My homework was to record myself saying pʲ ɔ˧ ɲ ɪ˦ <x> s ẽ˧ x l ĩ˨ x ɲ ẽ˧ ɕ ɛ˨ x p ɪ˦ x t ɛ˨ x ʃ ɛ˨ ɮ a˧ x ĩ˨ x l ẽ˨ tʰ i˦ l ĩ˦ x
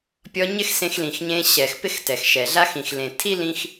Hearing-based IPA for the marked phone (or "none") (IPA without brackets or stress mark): x